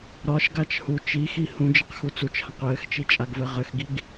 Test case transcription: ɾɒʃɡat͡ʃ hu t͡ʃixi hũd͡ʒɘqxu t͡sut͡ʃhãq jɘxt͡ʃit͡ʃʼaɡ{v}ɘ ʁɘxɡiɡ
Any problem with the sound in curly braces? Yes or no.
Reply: no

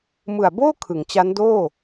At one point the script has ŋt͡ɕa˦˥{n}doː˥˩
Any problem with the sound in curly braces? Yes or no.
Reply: no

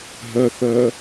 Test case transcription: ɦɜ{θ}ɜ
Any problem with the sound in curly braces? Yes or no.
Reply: no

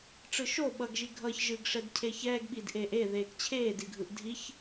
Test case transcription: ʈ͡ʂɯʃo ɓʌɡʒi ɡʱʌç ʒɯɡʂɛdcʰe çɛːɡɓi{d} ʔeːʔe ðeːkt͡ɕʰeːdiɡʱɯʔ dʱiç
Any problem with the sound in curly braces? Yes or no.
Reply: no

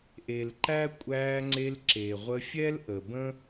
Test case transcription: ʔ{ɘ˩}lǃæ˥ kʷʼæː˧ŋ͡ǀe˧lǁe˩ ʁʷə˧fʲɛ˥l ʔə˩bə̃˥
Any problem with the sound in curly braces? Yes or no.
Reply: yes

